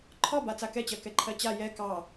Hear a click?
yes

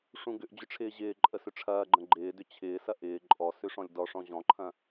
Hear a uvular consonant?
no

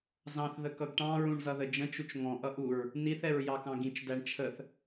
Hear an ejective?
no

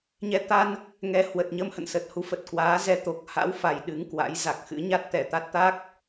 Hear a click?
no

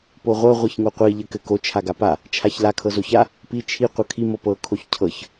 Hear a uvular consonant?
yes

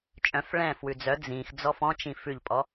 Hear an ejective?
yes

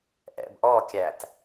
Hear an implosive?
no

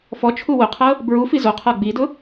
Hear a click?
no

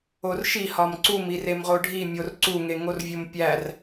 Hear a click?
yes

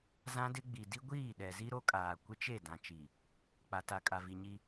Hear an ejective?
yes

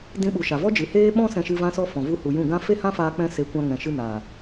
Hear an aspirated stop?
no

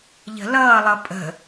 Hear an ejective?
yes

